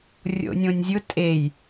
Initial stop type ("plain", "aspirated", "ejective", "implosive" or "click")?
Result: ejective